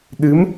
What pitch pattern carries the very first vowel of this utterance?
rising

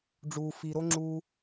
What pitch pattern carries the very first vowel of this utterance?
low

